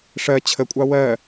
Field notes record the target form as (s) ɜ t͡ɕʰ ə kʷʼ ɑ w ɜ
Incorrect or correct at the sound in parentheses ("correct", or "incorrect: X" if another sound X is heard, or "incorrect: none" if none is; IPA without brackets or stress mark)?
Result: incorrect: ʂ